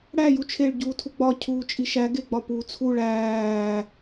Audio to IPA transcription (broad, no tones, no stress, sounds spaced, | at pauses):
ɽ æ j u t͡ʃʰ e ɭ ɟ uː tʰ u ɡ͡b ɒ cʰ uː t͡ʃʼ i ʃ æ ɡ e ɡ͡b ɒ p uː t͡sʰ u ɭ æː